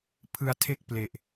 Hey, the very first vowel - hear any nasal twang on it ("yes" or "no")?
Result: no